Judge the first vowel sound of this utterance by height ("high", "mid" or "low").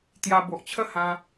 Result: low